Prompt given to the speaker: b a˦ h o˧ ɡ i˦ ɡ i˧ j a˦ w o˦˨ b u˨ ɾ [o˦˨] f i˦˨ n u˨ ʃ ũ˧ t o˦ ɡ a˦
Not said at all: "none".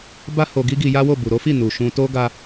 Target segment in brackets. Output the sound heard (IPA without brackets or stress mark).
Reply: o˨˦